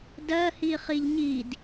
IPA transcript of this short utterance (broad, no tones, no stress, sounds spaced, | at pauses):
d ɜ h i χ i ʎ ɲ i d